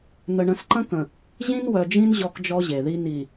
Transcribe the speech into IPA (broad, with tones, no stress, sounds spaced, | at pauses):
n̪ ə˨ ɳ ə̃˨ s ǃ ə̃˦ k ə̃˨ | ʑ ĩ˦ n w œ˨ d͡ʒ ĩ˦ n ʑ ɔ˦ k d͡ʒ ɔ˦ ʑ e˨ ð i˦ n i˨